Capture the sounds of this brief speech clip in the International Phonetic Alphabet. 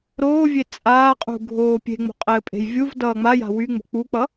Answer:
ɾoːvʲe t͡sʼaːqʼṳɡʱoː pʲe̤ŋ͡mo̤qʼɘːpʼe̤j vʲuvdʌː ŋ͡maja̤ wyŋ͡mo̤ k͡puk͡pʌ

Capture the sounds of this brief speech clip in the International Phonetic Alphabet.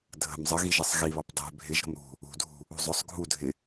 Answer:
dʱə̤m zˤəɣiʒɛsˤ ɣiβɑp dˤɛ̤ bʱɪʒ ɾə̤mɾṳ | ṳdʱṳ | ṳzˤʊsˤ ɡʱu dʱɪ

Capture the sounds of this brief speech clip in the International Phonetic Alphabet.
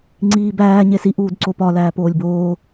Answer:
ŋ͡ǀiːbæː ɲesi ʔuːdǀopɒ læːpoːlʲboː

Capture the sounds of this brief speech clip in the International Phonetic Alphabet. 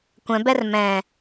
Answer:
kʷɛ̃bɛr mɛ̃

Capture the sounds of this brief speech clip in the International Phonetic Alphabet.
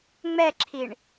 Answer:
ŋ͡mɛǁʰiɳ

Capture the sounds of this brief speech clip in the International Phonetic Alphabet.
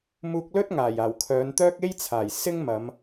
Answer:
muː˧k̚lɵ˥t̚ŋaː˨˩j aː˨˩wkʰœː˨˧nt̪œː˥k̚ e˥jt͡sʰaː˨˩j sɪ˥ŋmɐ˨˧m

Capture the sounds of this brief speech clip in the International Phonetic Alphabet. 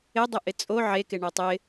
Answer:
ɪdˤɪ ʔɪt͡sʼo ʕekɪ ɳotˤɪ

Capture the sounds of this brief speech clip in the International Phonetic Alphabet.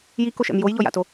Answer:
jikoʃɛ̰m jojʎɔja̰to

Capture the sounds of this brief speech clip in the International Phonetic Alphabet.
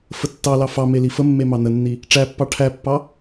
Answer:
fətːɑlɑ fɑ melifəmːe mɑnənːi | ʈ͡ʂæpːɑ ʈʰæpːɑ

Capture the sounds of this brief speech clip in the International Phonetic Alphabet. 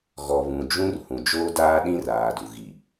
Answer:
ɣɔ˨βũ˨d͡ʒũ˦r hũ˨d͡ʒoː˦daː˦ ɗĩ˦raː˨du˨ɣi˨

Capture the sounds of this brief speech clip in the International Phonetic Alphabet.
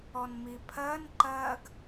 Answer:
ɔnmipʰɜn ǃɜɡ

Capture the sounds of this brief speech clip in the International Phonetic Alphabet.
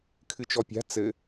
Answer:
kʰɨt͡ʃɔpʲa̤ t͡sɘ

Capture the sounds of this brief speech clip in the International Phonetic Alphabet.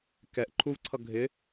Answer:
kɛʔ ǃʰuvǀʰʌ ɡʱɪ

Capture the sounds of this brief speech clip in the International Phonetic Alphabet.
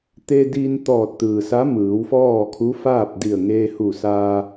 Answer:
t̪e˧diː˧nt̪ɔː˧˩t̚ t̪ɯː˩sa˧˥ mɯː˩˧wfɔː˥˨ kʰu˧˥faː˥˨p̚ di˧˩ə̯ŋeː˧hu˧˩saː˧

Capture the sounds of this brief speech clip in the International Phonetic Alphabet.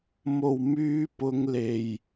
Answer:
mo˨˩wmyː˧ pʊ˨˧ŋle˨˩j

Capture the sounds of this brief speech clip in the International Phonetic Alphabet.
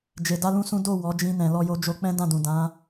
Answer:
d͡ʒe˨da˧lũ˧ sũ˦ do˦˨ wɔ˨˦ d͡ʒĩ˧nɛ̃˨ lɔ˧jo˧d͡ʒo˧k͡pɛ̃˦ dã˦˨dũ˨ dã˨˦

